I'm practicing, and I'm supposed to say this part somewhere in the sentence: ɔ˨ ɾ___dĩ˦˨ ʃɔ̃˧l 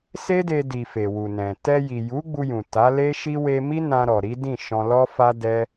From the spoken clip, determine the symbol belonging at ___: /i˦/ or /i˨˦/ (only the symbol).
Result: i˨˦